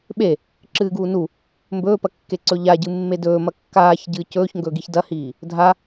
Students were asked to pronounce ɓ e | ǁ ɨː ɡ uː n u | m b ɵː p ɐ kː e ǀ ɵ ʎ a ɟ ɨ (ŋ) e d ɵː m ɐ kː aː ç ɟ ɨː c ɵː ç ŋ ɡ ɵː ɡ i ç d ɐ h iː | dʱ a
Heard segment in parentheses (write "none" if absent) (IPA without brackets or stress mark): mː